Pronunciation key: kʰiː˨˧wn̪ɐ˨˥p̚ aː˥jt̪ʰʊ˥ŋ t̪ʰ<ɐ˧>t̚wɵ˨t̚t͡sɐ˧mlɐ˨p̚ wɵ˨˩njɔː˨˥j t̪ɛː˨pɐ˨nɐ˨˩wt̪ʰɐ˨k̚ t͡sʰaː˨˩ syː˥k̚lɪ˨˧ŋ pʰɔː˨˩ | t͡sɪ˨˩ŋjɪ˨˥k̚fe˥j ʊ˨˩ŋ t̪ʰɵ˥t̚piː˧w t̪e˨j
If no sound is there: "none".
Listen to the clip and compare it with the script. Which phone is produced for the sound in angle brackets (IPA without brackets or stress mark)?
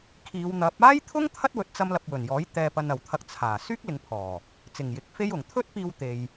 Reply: ɐ˥